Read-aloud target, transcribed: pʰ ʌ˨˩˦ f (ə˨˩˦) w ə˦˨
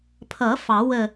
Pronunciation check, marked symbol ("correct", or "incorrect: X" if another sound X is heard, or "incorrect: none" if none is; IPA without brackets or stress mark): incorrect: ɑ˨˩˦